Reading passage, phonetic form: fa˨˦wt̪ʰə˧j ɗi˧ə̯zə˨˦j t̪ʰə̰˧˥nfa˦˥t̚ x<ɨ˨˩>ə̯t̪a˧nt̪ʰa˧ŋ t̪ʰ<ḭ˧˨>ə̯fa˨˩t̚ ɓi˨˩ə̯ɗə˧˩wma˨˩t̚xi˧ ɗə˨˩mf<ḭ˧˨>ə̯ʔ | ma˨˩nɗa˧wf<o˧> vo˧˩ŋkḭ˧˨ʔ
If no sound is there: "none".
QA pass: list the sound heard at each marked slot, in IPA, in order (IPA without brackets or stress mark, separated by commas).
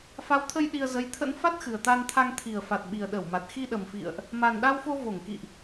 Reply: ɨ˨˩, i˨˩, ḭ˧˨, o˧